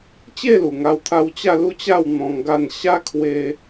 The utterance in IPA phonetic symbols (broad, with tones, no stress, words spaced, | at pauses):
t͡ɕe˥˧lu˨˩ŋa˧wt̪ʰa˧w t͡ɕa˥˧lu˥˧t͡ɕa˥˧wn̪ɔ̃˧ŋ ɡa˥˧n ɕa˦ kʰwe˦